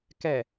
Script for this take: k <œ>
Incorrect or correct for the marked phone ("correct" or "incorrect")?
incorrect